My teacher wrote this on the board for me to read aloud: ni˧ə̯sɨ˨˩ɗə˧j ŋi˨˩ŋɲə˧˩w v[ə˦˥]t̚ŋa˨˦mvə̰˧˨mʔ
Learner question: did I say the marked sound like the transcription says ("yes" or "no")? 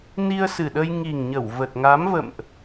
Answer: no